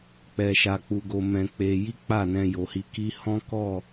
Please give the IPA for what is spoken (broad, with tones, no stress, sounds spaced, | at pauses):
k͡p ɛ˧ ʃ a˧ k͡p u˧ ɡ o˧ m ɛ̃˧ k͡p e˧ j i˦ k͡p a˦˨ n ɛ̃˧ j o˨ h i˧ k i˦ h ɔ̃˦ k ɔ˦˨